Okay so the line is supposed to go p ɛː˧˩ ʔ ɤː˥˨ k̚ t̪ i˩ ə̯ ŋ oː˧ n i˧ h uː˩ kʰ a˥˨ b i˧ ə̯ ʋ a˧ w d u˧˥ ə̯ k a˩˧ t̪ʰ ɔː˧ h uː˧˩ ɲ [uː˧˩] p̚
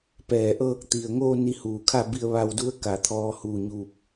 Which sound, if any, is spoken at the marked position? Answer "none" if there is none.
uː˧˩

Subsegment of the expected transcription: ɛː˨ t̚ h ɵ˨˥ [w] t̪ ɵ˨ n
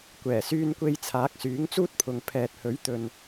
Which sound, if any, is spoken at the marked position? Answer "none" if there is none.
ɥ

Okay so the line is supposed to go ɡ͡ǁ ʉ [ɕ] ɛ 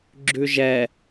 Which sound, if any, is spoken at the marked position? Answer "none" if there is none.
ʒ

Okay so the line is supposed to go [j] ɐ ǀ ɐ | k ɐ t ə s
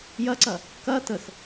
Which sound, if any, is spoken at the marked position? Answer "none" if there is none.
j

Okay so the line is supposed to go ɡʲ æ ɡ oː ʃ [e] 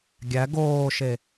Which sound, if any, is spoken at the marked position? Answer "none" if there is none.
e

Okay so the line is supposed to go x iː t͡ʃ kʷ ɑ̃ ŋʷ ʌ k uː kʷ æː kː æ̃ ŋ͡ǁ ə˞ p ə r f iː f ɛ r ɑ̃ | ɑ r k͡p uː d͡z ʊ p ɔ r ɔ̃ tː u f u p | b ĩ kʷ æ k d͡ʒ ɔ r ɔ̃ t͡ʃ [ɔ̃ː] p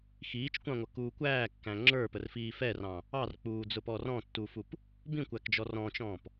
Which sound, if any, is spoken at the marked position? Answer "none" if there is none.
ɔ̃ː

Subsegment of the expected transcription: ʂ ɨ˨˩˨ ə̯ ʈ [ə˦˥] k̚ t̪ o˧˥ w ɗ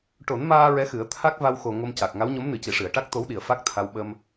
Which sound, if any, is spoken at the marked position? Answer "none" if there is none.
a˦˥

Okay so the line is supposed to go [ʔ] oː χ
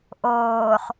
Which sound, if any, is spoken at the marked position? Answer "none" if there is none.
ʔ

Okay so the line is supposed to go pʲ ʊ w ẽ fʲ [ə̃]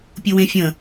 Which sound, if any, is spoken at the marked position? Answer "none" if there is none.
ə̃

